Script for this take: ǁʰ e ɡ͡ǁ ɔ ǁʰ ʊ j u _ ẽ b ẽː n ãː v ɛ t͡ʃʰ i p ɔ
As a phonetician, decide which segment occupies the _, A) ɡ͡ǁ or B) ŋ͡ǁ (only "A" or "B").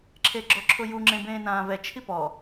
B